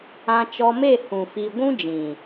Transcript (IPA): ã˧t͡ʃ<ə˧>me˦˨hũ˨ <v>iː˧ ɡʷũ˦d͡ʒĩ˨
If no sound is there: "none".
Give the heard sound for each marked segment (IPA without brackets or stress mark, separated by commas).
ɔ˧, f